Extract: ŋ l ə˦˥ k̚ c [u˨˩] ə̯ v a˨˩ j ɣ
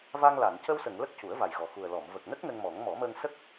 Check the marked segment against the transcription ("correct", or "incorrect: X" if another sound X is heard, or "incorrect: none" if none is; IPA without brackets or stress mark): incorrect: u˨˩˦